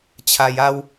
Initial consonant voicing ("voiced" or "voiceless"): voiceless